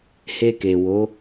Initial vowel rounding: unrounded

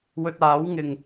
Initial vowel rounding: rounded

